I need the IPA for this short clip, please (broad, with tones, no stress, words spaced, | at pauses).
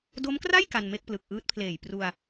do˦˥mkra˥˩j ka˧nme˥˩k̚plɯ˨˩k̚ ʔɯː˦˥t̚pʰleː˨˩j pru˧a̯